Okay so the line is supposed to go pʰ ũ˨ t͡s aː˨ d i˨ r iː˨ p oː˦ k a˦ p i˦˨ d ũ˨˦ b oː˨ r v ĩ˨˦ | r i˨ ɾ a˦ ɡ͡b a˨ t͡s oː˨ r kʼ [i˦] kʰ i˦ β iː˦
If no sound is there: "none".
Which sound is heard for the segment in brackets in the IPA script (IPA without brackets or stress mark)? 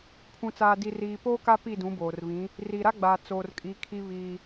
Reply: i˨˦